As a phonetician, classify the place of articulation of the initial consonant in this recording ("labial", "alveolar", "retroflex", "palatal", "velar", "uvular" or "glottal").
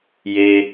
palatal